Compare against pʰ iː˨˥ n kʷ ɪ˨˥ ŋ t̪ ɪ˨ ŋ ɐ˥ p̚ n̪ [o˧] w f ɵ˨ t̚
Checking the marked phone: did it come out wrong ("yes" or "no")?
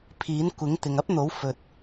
yes